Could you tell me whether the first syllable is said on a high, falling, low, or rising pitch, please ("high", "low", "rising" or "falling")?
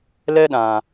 high